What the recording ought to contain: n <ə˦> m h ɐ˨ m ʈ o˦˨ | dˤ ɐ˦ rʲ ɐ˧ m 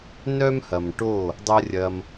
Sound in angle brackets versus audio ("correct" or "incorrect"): incorrect